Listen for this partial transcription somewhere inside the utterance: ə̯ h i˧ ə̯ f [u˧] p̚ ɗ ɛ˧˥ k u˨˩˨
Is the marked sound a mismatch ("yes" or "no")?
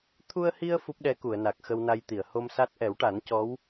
yes